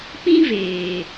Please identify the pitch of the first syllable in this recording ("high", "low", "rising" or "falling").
high